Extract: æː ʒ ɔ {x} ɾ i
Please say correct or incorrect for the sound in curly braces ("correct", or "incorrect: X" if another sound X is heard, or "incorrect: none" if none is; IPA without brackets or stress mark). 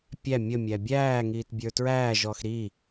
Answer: correct